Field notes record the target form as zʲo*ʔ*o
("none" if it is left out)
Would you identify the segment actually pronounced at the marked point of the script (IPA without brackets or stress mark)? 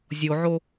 ʕ